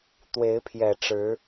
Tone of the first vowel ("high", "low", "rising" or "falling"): rising